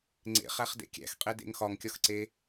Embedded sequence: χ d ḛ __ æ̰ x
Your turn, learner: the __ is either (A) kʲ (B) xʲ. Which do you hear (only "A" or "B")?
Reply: A